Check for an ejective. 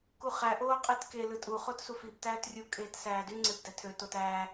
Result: present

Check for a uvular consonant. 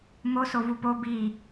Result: absent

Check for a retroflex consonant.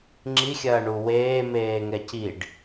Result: present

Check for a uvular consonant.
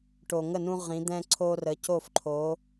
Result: present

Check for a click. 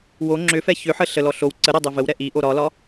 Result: present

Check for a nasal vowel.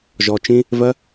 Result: present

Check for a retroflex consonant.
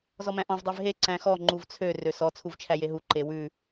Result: absent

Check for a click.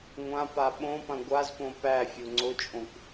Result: present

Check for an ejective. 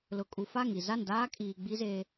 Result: present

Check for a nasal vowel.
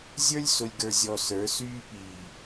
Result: absent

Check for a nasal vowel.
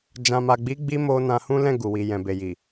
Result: present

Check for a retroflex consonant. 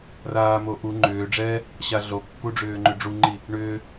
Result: present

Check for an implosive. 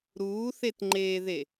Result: absent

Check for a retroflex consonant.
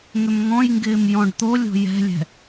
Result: present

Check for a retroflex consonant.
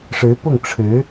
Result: present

